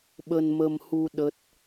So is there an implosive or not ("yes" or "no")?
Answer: yes